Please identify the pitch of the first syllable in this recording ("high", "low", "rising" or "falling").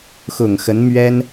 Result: low